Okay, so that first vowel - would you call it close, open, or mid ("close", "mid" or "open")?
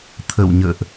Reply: mid